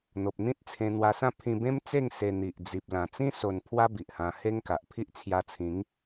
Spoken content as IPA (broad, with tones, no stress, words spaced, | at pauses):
n̪o˨p̚ n̪ĩ˦t̚t͡sʰẽ˧ n̪wa˧sã˥˧ pʰĩ˧bẽ˦mt͡se˥˧ŋ se˧n̪i˨ʔ d͡zi˨p̚ lã˨˩t͡sĩ˦ so˧n pʰwa˦ bi˨ʔhã˧ he˦ŋka˨ʔ pʰi˦ʔt͡sʰja˧t͡sʰĩ˨˦ŋ